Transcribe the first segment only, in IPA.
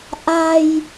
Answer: ʔ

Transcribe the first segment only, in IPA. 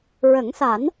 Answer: ɹ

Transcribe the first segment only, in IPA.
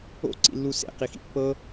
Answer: o̰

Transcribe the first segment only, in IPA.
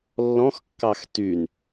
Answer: lː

